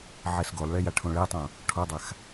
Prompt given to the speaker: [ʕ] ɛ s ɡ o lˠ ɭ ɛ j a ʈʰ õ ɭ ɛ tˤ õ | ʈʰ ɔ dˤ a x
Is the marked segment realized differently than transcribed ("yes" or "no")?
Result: no